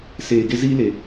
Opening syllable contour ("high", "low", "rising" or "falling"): low